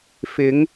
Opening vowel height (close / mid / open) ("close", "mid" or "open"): close